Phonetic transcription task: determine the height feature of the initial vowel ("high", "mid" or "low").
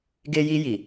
mid